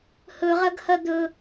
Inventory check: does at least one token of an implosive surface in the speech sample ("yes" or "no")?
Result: no